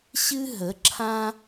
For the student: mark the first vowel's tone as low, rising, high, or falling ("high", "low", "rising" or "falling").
high